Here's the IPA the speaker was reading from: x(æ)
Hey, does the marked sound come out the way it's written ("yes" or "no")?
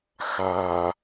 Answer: no